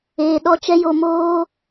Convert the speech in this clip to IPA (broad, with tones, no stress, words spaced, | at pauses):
eː˨ɗɔ˧ t͡ʃɛ˦jo˧moː˦